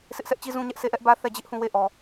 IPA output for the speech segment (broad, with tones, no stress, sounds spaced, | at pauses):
sʰ ɪ˦ ʔ sʰ ɛ˦ ʔ t͡ɕ i˦ z ũ˦ ɲ ɛ˦ ʔ s e˦˨ ʔ ɛ˦ ʔ b ä˦ θ ɛ˦˨ d͡ʑ ɪ˦ ʔ h ũ˦˨ w e˦˨ ʔ ɔ˨